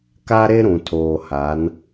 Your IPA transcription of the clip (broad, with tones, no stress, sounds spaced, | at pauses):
k a˦ ɾ e˦ ɾ ũ˨ tʰ oː˨ h a˨˦ n